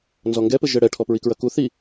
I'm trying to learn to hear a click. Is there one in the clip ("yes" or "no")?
no